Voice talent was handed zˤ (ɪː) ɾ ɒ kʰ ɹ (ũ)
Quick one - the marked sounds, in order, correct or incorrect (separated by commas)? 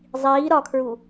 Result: incorrect, incorrect